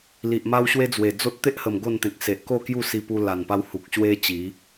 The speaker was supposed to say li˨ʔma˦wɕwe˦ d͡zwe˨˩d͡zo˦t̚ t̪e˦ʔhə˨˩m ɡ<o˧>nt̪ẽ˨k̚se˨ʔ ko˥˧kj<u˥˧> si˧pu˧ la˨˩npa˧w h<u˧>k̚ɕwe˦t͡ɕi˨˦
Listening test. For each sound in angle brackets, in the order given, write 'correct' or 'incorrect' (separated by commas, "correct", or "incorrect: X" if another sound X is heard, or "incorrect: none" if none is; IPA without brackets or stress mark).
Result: incorrect: o˥˧, correct, incorrect: u˨